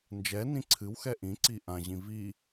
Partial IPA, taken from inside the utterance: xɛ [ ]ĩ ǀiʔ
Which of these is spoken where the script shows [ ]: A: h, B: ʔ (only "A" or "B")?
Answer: B